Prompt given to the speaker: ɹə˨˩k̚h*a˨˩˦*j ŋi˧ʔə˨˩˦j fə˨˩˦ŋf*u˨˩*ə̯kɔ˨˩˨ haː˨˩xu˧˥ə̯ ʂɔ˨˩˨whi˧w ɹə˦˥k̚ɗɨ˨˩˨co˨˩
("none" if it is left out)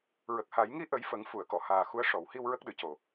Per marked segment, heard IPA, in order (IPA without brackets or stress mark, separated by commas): a˨˩˦, u˨˩˨